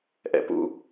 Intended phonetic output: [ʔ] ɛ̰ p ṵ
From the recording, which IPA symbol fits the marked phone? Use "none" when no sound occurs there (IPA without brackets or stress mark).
ʔ